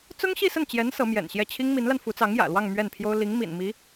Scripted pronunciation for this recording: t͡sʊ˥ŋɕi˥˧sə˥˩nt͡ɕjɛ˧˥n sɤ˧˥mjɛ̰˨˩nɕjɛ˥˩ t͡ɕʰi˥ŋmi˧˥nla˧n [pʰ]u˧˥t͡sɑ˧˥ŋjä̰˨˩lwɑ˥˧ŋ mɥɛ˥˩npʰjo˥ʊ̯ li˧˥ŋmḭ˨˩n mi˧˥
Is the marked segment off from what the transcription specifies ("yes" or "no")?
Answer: yes